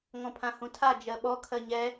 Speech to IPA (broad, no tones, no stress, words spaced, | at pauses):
ŋɔ̃pʰãhũtʰa d͡ʒɜɓɔ kʰɜɲɛ